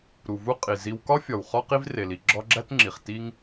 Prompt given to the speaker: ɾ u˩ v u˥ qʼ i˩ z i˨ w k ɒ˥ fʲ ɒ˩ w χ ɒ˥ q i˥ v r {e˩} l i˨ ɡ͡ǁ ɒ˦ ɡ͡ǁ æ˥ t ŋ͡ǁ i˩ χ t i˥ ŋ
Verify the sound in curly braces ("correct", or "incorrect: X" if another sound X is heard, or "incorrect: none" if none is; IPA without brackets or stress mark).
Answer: correct